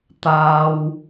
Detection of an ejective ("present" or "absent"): absent